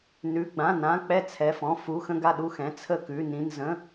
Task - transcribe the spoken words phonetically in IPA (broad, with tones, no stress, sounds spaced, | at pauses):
n ʉ˩˧˩ ɡ͡b ã˩˧˩ n ã˩˧˩ k͡p ɛ˥˩ t͡sʰ ɛ˩˧˩ f ɔ̃˩˧˩ f u˩˧˩ x ə̃˥˩ ɡ a˥˩ ɗ u˥˩ x ɛ̃˩˧˩ t͡sʰ ə˥˩ k ʉ˩˧˩ n ĩ˩˧˩ n z ə̃˩˧˩